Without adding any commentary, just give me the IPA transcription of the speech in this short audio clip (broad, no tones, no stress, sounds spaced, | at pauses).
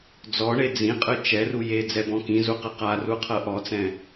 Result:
d͡z ɔ ɳ e d͡z ĩ qʼ ɯ t͡ʃ ɛ r u j e d͡z ɛ b ɔ̃ k ĩ z u q ɯ q a r u qʰ ɤ ʔ ɔ t͡s ɛ̃